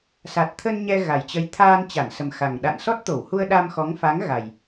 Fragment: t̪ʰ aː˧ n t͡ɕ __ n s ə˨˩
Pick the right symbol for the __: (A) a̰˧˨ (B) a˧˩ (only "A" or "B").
B